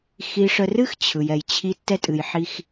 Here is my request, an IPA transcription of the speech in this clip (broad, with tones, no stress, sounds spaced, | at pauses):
x i˨ ʂ ə˨ r ɨ˦ x t͡ɕʰ ɯ˨ j ɛ˨ j t͡ɕʰ i˦ tː ɛ˦ tʼ ɨ˨ j ħ i˦ x